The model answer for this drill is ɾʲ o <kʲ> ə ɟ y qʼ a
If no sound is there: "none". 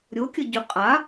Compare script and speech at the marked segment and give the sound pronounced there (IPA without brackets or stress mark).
kʲ